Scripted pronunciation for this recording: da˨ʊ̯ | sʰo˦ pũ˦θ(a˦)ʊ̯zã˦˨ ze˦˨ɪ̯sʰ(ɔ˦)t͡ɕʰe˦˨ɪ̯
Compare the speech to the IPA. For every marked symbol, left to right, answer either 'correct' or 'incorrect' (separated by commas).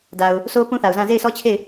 incorrect, correct